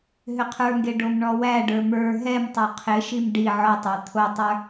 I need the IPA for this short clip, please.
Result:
ɦ ʏ qʰ ə˞ ŋ ɡ e ɖ o m ɳ ɔ w æ ɖ ə˞ m ə˞ ɦ ɛ m tˤ o qʰ ɪ ʃ i m ɖ i ʕ ɔ tˤ æ t̪ʰ o tˤ ə˞

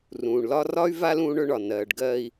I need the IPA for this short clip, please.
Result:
r ũː˩ ɳ l ɒ˦ r ɒ˥ y̯ v a˥ l ũː˦ ɳ ɵ˦ ɳ ɒ˩ n ɜː˨ ɖ ɡ ɜː˦ i̯

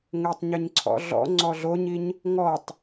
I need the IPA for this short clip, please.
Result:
ŋ ɘ tˤ ɲ ɘ ɲ ǀʰ ɔ̰ ɮ ɔ̰ ŋ͡ǀ ɔ ɮ o ɲ i ɲ | ŋ ɔ tˤ

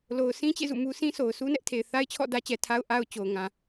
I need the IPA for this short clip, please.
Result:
l o˨ ʊ̯ sʰ ĩ˦ t͡ɕ ḛ˦˨ z ṵ˦˨ m u˦ s ĩ˦ s o˨ ʊ̯ s u˦ n ɛ˦ ʔ tʰ e˨ ɪ̯ θ a˦ ɪ̯ t͡ɕʰ ɔ̰˦˨ d ä˦ t͡ɕ ɛ˨ tʰ a˦ ʊ̯ ʔ a˦ ʊ̯ t͡ɕ o˨ ʊ̯ ŋ ã˨

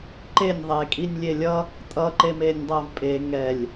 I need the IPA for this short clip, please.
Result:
ǃ e nʲ ðˤ e kʼ i nʲ lʲ e lʲ ʌ | tʼ ʌ ǃ e m e nʲ dˤ ʌ v pʼ e ŋ ɛ lʲ

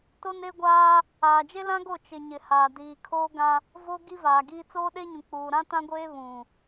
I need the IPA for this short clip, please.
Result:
t o˦ n e˦ ɡʷ aː˦ | aː˨ d͡ʒ e˦ l ã˦ ɡ o˦˨ t͡ʃ ɪ˨ ɲ ɪ˨ h aː˨ d iː˨ kʰ oː˦ ɡ ã˦ | v o˦ ɡ i˦ v aː˨ ɡ iː˦ t͡s oː˦ ɗ e˦ ɲ ũ˨ k͡p uː˨ ɾ ã˦ t ã˦ ɡʷ eː˦ β ũ˨

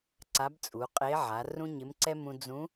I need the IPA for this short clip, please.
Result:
ǀ a˧˥ b t͡sʼ u˩˧ qʼ e˧˥ ʕ a˩˧ r ũ˥ ɲ ɪ˧˥ m ǀ ɛ˥ m ũ˧ d͡z ũ˧˥

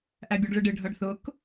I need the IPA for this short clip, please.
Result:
ʔ æ bʲ ɔ ɖ ɭ ɪ ɖ ɪ ɖʱ ʌ ɖ θ ʊ k

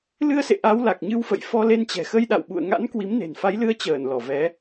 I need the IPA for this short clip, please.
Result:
l ɨ˧ ə̯ s ḛ˧˨ ʔ a˨˦ w l a˨˩ k̚ ɲ ɨ˧ w f ə̰˧˨ j f ɔ˧ l e˧ n t͡ɕ ɛ̤˨˩ x ə˧ j ɗ a̰˧˨ w ɓ ṵ˧˨ ə̯ ŋ a̰˧˥ n k w i˨˦ m n e̤˨˩ n f a˨˦ j l ɨ˧ ə̯ t͡ɕ əː˧˩ n l ɔ˧˩ v ɛ˨˦

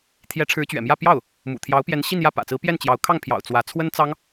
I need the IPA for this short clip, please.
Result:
t̪ʰ j ɛ˧˥ ʈ͡ʂʰ ɻ̩˧˥ t͡ɕ ɥ ɛ̰˨˩ m j ä˥˧ p j ɑ˥˩ ʊ̯ | m ṵ˨˩ t̪ʰ j ɑ˧˥ ʊ̯ p j ɛ˧˥ n ɕ i˥˧ n j ä˥˩ p ä̰˨˩ t͡s ɹ̩˧˥ p j ɛ˥˩ n t͡ɕ j ɑ˧˥ ʊ̯ kʰ ɑ˥˩ ŋ pʰ j ɑ̰˨˩ ʊ̯ t͡s w ä˧˥ t͡sʰ w ə˥ n t͡s ɑ˥ ŋ

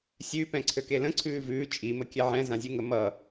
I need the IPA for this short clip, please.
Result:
sʲ ʉ p ɛ̃ ǀʰ ø k e l ə̃ ǀʰ ʉː v ʉː t͡ʃʼ i m ə kʲ ɛ ʕ ɛ̃ z ã zʲ ʉ ŋ ə m ʌ

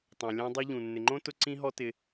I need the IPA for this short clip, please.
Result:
tˤ õ˨ lʲ ɔ̃˧ dˤ u˧ ʎ ũ˨ nː ɪ˨ ŋ͡ǃ õ˦ t ʊ˧ ǀ ĩ˦ ɦ ɔ˦ t ɪ˧

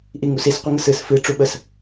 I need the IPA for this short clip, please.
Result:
ʔ i ŋ u s i s qʷ ə ŋ ə s ɨ s f ɨ ʈ͡ʂ u ɓ ə s

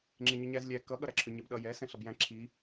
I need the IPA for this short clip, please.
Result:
ŋ͡ǁ e ɲ ʏ ɲ æ z lʲ æ k ʌ ɠ ʌ ɾ æ ǁʰ ʏ ɲ ɛ b ɗ ʌ j ɛ s ɛ̃ ɬ ʌ b j æ̃ ǁʰ i

